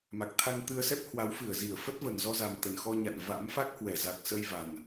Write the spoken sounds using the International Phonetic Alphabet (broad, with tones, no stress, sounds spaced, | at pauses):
m a˨˩ k̚ t̪ʰ a˧ ŋ t̪ ɨ˧ ə̯ s ɛ˦˥ p̚ h w a˨˦ w f ɨ˧˩ ə̯ z i˧˩ ə̯ f ə˦˥ t̚ v ə˨˩ n z ɔ˧ z a˨˩ m t̪ ə˨˩ n x ɔ˧ ɲ a̰˧˨ n v a̰˧˥ m f a˦˥ k̚ h w ɛ˧˩ z a˨˩ k̚ s ə˧ j v a˨˩ n